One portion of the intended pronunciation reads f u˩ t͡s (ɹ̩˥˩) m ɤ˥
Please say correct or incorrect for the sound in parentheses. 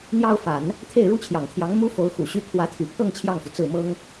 correct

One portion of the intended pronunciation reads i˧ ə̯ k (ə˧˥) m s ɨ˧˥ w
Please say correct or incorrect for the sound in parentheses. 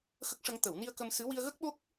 incorrect: ə˧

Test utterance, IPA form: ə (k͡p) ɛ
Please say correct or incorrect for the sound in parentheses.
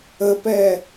incorrect: p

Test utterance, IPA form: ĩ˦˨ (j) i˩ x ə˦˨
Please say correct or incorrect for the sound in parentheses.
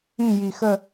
correct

